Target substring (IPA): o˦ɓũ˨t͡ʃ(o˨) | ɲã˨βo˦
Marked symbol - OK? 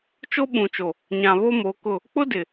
yes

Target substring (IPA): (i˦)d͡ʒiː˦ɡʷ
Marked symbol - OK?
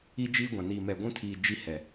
yes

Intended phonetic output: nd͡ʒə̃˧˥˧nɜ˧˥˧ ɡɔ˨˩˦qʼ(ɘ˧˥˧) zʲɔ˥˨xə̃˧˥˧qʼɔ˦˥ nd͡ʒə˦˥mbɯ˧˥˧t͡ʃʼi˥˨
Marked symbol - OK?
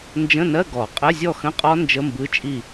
yes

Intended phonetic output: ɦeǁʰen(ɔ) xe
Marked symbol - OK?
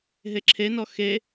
yes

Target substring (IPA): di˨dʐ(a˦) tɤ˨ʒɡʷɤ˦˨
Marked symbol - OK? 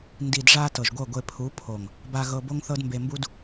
no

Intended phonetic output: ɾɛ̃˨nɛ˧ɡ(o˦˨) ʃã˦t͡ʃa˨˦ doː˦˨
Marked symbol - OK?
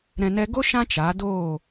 no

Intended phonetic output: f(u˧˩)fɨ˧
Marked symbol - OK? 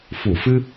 yes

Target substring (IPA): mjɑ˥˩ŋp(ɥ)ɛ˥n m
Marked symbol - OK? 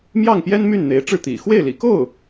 no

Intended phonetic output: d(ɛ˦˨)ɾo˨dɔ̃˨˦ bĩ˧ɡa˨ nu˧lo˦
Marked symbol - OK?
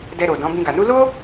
no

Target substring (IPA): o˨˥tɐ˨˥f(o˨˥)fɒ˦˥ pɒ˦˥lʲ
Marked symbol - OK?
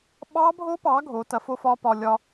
no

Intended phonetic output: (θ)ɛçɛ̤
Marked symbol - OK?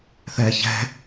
yes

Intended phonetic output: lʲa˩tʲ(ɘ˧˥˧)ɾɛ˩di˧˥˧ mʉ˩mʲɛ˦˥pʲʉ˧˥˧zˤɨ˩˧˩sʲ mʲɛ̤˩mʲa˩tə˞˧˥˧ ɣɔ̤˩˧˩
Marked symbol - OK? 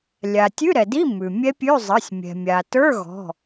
no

